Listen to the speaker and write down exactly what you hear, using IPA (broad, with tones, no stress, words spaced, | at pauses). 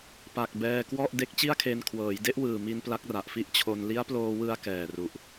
pa˨˩k̚ bɛː˧kwɔ˥˩ʔ de˦˥k̚t͡ɕi˥˩a̯kʰe˧n kʰwɤː˩˦jde˦˥ʔwɯː˨˩mi˧n pla˦˥k̚ra˨˩ʔfi˥˩ʔt͡ɕʰo˧n li˦˥a̯ploː˧wɯ˧a̯ kɛː˨˩ru˨˩ʔ